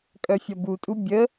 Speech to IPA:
kʼœfʲʌbutʼu bʲə

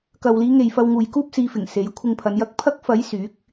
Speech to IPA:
kɐ˨wliː˨˧ŋe˨j fɐ˧wŋuː˨jkuː˥p̚siː˨˧ fɪ˨˩ŋse˨˥jkʷʰɪ˧ŋpʰɐ˨˧n jɐ˧k̚pʰɐ˥k̚fɐ˨˥j syː˨˥k̚

